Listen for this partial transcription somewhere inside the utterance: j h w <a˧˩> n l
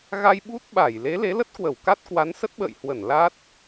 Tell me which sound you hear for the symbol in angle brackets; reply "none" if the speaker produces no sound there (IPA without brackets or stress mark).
ə˧˩